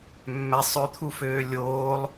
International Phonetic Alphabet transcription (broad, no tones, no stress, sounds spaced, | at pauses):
mː æ sˤ ø t̪ʰ u f øː lʲ oː lˠ